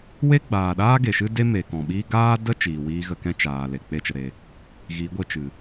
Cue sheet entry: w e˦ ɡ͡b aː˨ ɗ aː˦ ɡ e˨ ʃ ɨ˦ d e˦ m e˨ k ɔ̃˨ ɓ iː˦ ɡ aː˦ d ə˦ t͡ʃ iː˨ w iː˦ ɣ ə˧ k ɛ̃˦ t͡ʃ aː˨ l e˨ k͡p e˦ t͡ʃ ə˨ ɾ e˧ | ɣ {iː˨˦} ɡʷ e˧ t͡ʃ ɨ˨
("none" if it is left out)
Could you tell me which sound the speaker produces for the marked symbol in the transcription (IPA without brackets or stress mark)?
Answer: iː˨˦